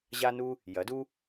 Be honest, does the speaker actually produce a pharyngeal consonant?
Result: no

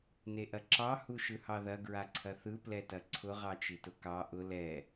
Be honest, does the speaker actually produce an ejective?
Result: no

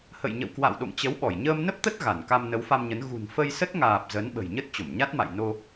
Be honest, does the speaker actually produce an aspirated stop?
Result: no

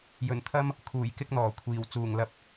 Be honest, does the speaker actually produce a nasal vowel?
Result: no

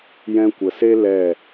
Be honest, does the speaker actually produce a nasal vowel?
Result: yes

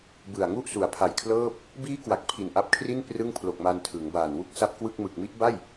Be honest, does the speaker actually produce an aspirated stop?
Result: yes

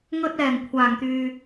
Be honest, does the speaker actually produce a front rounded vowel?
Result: yes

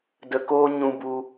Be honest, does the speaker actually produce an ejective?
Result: no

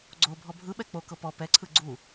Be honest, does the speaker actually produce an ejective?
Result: no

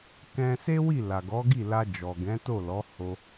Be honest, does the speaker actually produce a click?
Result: no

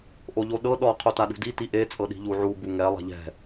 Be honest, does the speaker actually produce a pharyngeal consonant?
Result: yes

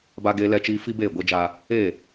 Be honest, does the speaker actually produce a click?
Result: no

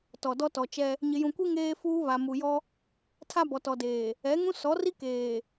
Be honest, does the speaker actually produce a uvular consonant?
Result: no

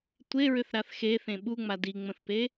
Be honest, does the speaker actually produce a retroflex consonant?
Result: no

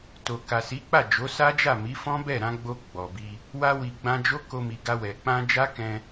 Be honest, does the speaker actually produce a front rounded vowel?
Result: no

